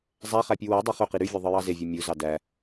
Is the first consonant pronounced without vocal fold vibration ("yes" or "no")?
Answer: no